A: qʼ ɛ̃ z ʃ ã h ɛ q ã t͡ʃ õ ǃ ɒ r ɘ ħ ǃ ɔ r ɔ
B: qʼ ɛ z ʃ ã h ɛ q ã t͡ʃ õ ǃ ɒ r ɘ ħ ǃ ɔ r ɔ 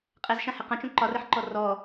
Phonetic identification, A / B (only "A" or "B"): B